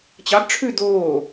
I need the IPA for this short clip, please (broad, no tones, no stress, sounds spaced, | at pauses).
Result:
t͡ɕ ɑ ɡ ʈ͡ʂʰ ʉ d̪ oː